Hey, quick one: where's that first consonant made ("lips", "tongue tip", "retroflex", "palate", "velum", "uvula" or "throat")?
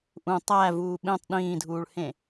throat